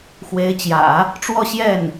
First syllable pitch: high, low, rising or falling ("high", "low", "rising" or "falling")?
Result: rising